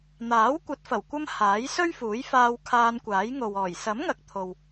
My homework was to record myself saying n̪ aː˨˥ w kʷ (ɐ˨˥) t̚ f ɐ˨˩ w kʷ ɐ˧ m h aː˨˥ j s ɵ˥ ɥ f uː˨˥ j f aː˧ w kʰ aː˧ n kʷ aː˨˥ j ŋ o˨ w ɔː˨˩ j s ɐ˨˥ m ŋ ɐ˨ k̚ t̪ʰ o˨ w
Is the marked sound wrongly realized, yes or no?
no